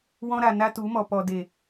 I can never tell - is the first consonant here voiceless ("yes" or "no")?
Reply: no